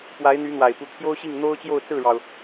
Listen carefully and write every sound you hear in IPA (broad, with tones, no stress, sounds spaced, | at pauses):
p w a˧˥ ɪ̯ n̪ y˧˥ n̪ w a˨˩ ɪ̯ p u˧˥ t̪ʰ j o˥ ʊ̯ ɕ i˥˩ ŋ n̪ o˥ ʊ̯ t͡ɕ j o˥˧ ʊ̯ t͡s ɹ̩˥˩ ɻ ɑ˩ ʊ̯